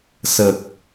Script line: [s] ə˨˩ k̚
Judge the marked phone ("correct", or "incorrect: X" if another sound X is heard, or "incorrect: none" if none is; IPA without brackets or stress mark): correct